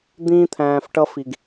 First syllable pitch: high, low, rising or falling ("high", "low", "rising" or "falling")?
high